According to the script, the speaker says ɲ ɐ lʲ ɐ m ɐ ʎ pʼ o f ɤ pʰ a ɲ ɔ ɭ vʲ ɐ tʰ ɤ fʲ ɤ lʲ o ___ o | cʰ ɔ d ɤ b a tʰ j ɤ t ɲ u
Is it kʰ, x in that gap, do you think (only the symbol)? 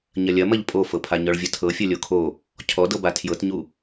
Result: kʰ